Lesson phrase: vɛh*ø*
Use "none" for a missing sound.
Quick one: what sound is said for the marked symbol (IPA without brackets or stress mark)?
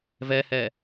ɛ